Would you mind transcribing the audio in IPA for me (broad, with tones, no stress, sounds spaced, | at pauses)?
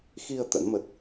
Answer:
x i˧ ə̯ t̪ ə̰˧˥ n m ə˦˥ t̚